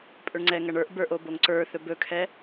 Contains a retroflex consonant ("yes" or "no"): yes